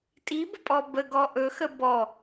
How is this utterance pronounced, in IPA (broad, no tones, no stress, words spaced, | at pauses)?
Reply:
tʼibəpʼɔ bəɡɔ ʔɵxə bɔ